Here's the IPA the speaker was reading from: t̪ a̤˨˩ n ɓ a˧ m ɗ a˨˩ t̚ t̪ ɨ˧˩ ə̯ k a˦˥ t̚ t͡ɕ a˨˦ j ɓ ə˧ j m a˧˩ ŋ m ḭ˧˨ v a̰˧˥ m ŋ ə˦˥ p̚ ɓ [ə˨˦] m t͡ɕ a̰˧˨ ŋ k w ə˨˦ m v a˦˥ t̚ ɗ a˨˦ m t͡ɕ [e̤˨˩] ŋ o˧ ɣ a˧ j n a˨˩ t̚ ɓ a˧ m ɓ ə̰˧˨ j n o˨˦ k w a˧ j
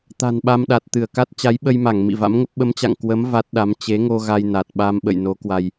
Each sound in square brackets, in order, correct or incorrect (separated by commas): correct, incorrect